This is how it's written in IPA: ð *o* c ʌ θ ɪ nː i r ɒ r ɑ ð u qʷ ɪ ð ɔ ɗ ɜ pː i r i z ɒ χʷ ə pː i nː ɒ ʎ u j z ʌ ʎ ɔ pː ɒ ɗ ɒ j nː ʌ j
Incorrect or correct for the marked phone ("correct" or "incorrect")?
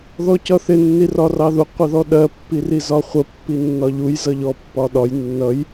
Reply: incorrect